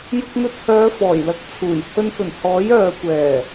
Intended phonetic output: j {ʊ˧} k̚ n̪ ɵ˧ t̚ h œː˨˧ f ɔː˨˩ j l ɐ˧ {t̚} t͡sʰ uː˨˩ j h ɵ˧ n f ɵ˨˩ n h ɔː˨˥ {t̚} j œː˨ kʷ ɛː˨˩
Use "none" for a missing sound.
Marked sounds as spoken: ʊ˧, k̚, none

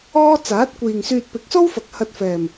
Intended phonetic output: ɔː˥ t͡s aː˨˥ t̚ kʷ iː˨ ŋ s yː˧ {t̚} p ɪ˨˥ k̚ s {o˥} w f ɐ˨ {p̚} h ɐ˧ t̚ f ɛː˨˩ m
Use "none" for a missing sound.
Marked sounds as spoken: t̚, o˥, k̚

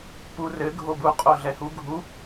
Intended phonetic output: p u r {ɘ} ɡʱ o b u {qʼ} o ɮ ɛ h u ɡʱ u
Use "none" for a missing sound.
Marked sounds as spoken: ɘ, qʼ

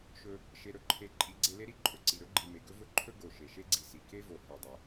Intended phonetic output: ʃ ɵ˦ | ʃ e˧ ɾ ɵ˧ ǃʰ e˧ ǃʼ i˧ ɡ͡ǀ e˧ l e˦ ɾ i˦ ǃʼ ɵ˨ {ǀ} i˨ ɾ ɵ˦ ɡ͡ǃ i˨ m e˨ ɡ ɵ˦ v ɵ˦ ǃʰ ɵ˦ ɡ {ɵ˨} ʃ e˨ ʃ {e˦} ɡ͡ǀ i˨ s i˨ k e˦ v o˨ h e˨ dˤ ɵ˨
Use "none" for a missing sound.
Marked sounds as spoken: ǀ, o˨, e˦

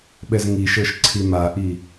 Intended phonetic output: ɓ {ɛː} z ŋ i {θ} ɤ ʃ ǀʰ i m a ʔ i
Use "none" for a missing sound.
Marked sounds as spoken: ɛ, ʃ

